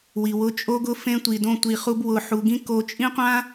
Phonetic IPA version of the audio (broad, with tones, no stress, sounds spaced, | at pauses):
w i˨ w ʊ˧ t͡ʃʼ o˦ ɡ ʊ˦ f ẽ˦ tʷ i˧ d õ˦ tʷ i˧ χ u˦ b w ʊ˧ ħ u˧ ɡ ĩ˦ k o˧ t͡ʃʼ ĩ˦ qʷ ã˦